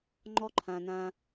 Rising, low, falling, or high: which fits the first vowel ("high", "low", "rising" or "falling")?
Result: high